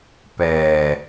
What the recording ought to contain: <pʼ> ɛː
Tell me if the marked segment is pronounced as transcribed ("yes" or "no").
no